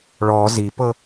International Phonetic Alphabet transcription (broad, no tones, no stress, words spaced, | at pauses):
ɭɔ zipɤ